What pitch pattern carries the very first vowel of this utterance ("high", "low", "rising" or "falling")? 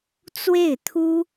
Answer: falling